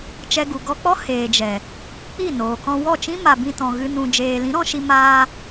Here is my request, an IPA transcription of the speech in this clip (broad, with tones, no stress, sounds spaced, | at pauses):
t͡ʃ ɛ˧ ɡ u˨ ɡ ɔ˧ k͡p ɔ˦ h eː˨ d͡ʒ ɛ˨ | k͡p i˦˨ n oː˨ k ɔ̃˧ w ɔ˦˨ t͡ʃ ĩ˦ m a˨ b ĩ˧ t ɔ̃˨ ɣ ɨ˧ n ũ˧ d͡ʒ eː˨ l ĩ˨˦ ɾ ɔ̃˧ ʃ i˧ m aː˧